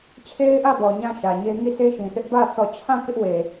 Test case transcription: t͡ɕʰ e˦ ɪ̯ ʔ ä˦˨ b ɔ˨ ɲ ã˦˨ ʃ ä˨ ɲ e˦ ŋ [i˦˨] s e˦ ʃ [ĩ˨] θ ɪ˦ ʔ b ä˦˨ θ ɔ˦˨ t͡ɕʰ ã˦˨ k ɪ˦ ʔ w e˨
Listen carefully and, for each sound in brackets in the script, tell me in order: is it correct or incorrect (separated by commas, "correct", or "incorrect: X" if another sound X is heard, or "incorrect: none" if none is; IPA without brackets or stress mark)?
correct, correct